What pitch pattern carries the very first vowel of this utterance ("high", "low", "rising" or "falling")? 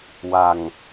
low